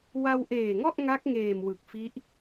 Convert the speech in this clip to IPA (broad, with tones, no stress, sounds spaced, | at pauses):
w a˧ w ʔ eː˨˩ ŋ ɔ˥˩ ʔ ŋ a˦˥ k̚ ŋ eː˨˩ m w ɯ˨˩ k̚ f i˦˥ ʔ